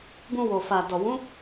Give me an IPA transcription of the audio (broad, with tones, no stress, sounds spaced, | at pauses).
b ũ˧ w o˨ f a˨ d ɔ˨ w ũ˨˦